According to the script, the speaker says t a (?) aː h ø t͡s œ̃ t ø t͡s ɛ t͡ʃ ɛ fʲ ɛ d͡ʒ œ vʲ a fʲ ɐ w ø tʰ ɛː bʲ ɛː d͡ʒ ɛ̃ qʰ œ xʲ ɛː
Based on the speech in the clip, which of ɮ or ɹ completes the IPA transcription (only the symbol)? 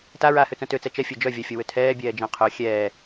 ɹ